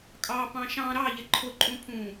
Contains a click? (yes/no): yes